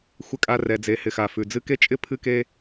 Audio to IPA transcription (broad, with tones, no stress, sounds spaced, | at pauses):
xʷ ɪ˦ kʼ a˦ r ɛ˨ d͡z e˨ h ɪ˨ x a˩ f ʉ˩ d͡z ɨ˦ k e˥ t͡ʃʼ ɪ˥ pʰ ɨ˥ k e˥